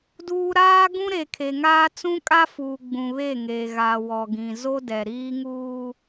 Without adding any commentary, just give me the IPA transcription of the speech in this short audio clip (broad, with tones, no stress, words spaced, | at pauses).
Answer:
duː˦ ɾaː˦ɡũ˦ɾe˨kʰe˨ ŋaː˦ t͡sũ˦kʼa˦fuː˨ ɡ͡bũ˨ βe˦˨ŋe˨ɣa˨ wɔ˨ɡĩ˨ zo˦dɛ˨ ɾiː˦ŋuː˦